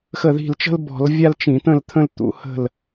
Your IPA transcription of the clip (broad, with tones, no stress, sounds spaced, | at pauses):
x ə˧˩ ð i̤˧˩ l t͡ʃ ə̤˥ l b ɔ̤˧˩˧ l vʲ a˥ l t͡ʃ ĩ˧˩˧ t̪ ə̃˥˨ l t̪ʰ ə̃˥ l t̪ ṵ˨˥ h ə̤˥˨ l